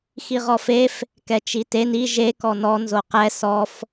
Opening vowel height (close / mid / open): close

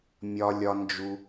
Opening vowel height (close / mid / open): open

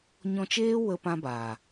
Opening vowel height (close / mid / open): mid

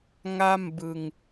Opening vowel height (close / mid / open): open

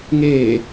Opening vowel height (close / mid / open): mid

